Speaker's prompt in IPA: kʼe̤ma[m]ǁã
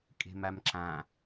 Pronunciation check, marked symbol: correct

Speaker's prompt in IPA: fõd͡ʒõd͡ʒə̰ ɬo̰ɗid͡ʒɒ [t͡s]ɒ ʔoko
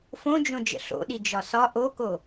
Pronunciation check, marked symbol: incorrect: s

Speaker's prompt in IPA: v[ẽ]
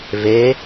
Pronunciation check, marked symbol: incorrect: e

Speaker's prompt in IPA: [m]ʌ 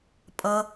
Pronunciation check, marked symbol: incorrect: pʼ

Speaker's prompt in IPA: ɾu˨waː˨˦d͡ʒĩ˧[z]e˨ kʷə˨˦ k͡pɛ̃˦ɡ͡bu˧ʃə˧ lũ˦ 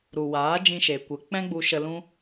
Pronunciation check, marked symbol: incorrect: ʃ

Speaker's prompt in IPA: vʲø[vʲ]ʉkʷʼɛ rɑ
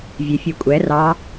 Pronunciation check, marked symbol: incorrect: fʲ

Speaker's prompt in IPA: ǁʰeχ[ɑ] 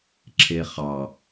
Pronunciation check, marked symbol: correct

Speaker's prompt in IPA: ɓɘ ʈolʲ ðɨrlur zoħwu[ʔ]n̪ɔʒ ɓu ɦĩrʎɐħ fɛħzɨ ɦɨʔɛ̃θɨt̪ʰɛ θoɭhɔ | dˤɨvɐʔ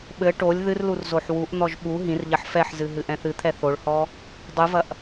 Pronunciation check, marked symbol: correct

